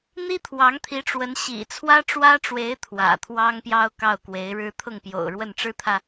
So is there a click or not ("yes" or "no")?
no